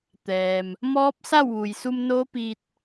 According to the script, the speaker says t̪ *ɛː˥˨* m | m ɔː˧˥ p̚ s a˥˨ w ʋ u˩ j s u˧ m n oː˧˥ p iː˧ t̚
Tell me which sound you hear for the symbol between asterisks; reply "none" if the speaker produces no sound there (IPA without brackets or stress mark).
ɛː˩